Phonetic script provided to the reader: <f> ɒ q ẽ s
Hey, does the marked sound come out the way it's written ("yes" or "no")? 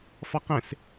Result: yes